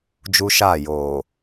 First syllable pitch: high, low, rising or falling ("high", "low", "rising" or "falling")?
high